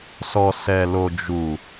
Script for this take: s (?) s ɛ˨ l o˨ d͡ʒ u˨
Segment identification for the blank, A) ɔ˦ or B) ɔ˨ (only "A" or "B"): B